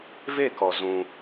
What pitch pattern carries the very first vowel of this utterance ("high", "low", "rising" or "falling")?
falling